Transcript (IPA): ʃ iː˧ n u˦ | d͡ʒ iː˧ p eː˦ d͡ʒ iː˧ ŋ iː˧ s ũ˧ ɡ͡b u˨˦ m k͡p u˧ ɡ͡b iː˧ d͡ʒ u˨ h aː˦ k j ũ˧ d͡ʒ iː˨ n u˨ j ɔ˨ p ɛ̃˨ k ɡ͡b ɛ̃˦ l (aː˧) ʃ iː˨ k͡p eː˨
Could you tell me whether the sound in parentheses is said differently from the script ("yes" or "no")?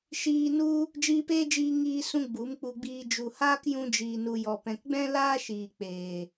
yes